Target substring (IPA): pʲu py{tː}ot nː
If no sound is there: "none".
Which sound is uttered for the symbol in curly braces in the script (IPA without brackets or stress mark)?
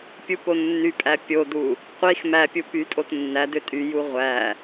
tʼ